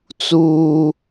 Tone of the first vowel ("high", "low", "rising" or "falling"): high